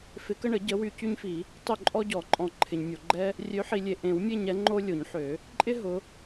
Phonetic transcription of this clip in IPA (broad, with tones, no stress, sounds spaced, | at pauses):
f ɪ˨˦ k ə˦ ɳ ə˨˩˦ ɟ ə˨˦ w y˨ c y˦ ɲ f i˨˩˦ | tˤ ø˦˨ ǃʼ ɔ˦ ɟ ɔ˨˩˦ ǃʼ ɔ̃˨˩˦ ǃʰ ɪ˨ ɲ mʲ o˨ ɡ͡ǃ ɛ˦ | rʲ ø˨˦ ħ i˨ lʲ e˨ ʔ ẽ˨˩˦ w mʲ e˦˨ ɲ ɛ˨˦ ŋ͡ǃ o˦ lʲ o˨˩˦ ɲ ħ ø˨˩˦ | ǃʼ ɪ˦ ɦ ʊ˨˦